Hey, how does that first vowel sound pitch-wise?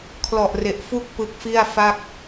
low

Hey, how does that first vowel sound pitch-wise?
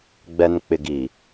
low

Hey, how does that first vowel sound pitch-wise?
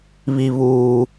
high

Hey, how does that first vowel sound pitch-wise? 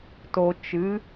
low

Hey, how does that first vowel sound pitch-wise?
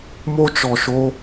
high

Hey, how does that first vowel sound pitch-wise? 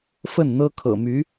falling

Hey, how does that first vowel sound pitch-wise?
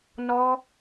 high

